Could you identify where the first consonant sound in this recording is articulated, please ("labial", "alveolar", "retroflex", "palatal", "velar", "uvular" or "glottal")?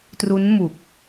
alveolar